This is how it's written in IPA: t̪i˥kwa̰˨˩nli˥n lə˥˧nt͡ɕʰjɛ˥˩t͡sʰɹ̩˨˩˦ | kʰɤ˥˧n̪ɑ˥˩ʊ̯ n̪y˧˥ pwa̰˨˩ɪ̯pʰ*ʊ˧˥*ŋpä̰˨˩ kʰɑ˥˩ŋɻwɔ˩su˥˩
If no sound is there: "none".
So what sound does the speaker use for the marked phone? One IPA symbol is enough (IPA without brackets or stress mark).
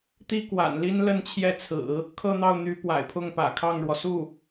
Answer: ʊ˥˩